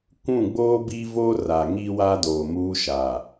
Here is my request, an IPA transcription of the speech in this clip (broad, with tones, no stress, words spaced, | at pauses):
kʷũ˦˨ɡ͡boː˦ bi˦vo˦ra˨ŋi˦ wa˦doː˨muː˦ ʃa˨